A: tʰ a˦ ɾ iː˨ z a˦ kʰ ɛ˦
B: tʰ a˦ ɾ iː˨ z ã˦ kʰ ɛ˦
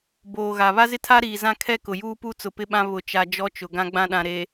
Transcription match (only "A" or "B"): B